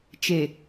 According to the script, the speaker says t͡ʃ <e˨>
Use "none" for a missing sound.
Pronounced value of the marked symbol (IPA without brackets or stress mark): e˨